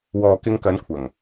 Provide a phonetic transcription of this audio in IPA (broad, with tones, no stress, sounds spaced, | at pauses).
w ɔː˨ k ɪ˧ ŋ k ɐ˨˧ n kʷʰ ɐ˨˩ ŋ